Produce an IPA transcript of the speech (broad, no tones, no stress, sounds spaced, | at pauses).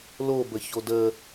l o b ə ç o d ə